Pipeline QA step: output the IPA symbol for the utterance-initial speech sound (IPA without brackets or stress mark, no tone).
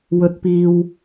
w